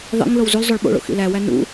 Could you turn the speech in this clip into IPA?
ðˤ ḭ ŋ l o w z u l zˤ o ɭ ɓ o̰ ɭ o̰ x ḭ l æ w æ n ṵ

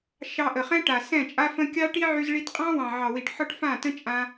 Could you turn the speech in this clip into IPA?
ʃ ɑ˧ ʔ ə˨ χ ɛ̃˦ ʈ a˨ s ɛ̃˦˨ t͡ʃʼ a˦ f ə̃˦ kʲ ɑ˦ ʈ i˦ ʕ y˧ z ɭ i˧ t qʼ ɑ̃˦ w ɑ̃˨ ʕ ɑ˨ w i˨ ʈ ħ ɒ˦ ʈ f ã˦˨ t ə̃˦ t͡ʃʼ ã˧

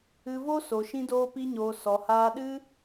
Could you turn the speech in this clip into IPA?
ɨ˧ v o˦ s o˨ ʃ ĩ˧ d oː˧ p i˧ ɲ oː˨ s ɔ˨ h aː˧ ɗ ɨ˦

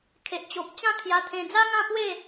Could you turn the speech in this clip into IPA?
kʰ e˨ ʔ t͡ɕ o˨ p̚ t͡ɕ ã˥˧ kʰ j a˧ t̪ʰ ẽ˧ d͡z a˦ ŋ ã˥˧ p w e˥˧

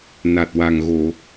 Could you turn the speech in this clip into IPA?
n a˨˩ t̚ w a˨˩ ŋ ɣ o˨˩˨

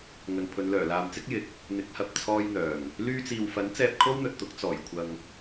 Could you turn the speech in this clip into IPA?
ŋ ɵ˨ n pʰ ɵ˨˧ n l œː˨˩ l aː˨ m t͡s ɪ˥ k̚ j ɪ˨˥ k̚ | n̪ ɪ˨˥ k̚ h ɐ˨ p̚ t͡sʰ ɔː˧ j n̪ œː˨˩ ŋ | l yː˧ t͡s iː˨ w f ɐ˨˥ n t͡s ɛː˧ p̚ kʰ o˥ w n̪ ɵ˨ t̚ t̪ ʊ˨˥ k̚ t͡s ɔː˨˩ j kʷʰ ɐ˨ ŋ

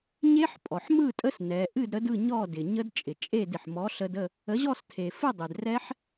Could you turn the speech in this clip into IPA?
ɲ e˦˥ ħ pʼ ɔ˩ ħ m ɯ˥˨ tʼ ə˦˥ s n ɛ˩˧ ʔ ɨ˥˨ d ɾ ə˨˥ d ɯ˥˨ ɲ ɔ˥˨ d ɪ˩ ɲ ə˦˥ d t͡ʃʼ ɪ˩ t͡ʃʼ e˥˨ d ɪ˩ ħ m ɔ˨˥ ɬ ə˧ d ə˥˨ | ə˨˥ ʑ ɔ˥˨ s tʰ e˩ f ɨ˥˨ dˤ ɪ˩ d r ɛ˦˥ ħ

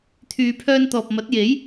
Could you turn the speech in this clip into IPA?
t̪ʰ yː˨ pʰ œː˧ n t̪ ɔː˨ p̚ m ɐ˨˥ t̚ j e˨˥ j

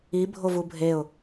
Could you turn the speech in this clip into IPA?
i bʱ o v u bʱ e ʊ̯

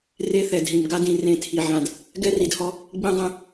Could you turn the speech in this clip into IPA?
r e˦ θ ɛ˨ d ɦ ĩ˨ m ɡ a˦ d ĩ˨ r ẽ˦˨ tʰ i˨ ʕ ã˨ d | ɡ ɛ˦ r i˨ d h ɔ˦ | ɡ͡b ĩ˦ dˤ ɛ̃˦

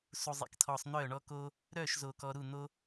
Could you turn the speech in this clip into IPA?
s u˧ zˤ ḛ˧ k tʰ ɔː˧ sˤ n̪ œː˥˧ ɳ ɔ˥ k oː˥ | ɾ œː˥˧ ʃ z oː˧ k ɔ˧ ɾ u˥˧ n̪ o˥

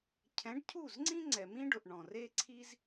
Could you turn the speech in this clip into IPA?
cʰ ɛ̃˨˦ ɖ cʰ u˦˨ z ŋ͡ǀ ĩ˦ ŋ͡ǀ ɛ˨ m ĩ˦ ɖ ʊ˨ ʔ ɳ ɔ̃˨ r e˦ ǀʰ i˦ z

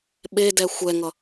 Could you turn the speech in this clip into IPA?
ɓ e d ɛ xʷ ɛ ŋ ʌ

